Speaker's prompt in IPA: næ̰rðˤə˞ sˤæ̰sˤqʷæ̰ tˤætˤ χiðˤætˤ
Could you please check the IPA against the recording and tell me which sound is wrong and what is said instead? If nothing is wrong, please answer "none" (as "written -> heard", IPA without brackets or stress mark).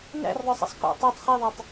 none